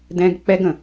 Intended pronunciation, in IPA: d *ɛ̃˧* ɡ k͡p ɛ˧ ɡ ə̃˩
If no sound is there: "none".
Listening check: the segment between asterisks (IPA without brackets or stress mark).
ɛ̃˧